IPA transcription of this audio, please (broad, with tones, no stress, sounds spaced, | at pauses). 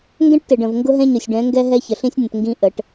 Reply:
ŋ ɡ ɛ̃˦ ʈ t ɪ˨ ɖ ə̃˨ v ŋ ɡ ʊ˦ ɦ ɛ̃˦ ɲ ʊ˨ sʲ ɖ ɛ̃˨˦ ŋ ɡ ɛ˦ ɦ ɛ˦ ç ə˨ ɬ ĩ˦ sʲ nʲ ə̃˨ t ŋ ɡ ĩ˦ ʔ ə˨˦ ʈ